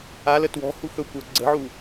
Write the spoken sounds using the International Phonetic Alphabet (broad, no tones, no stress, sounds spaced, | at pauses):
a l ə t w ɔ̤ h u x ɵ kʷ ɜ ɡ͡ǀ ə̤ ʕ u